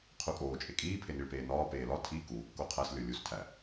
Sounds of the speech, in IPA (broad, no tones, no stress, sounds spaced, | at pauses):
qʰ u kʼ oː t͡ʃʼ e kʼ iː pʰ e n i ɭ p eː n ɒː p eː l ɒ tʰ i k uː kː o qʰ æ s lʲ o lʲ u s tʰ æ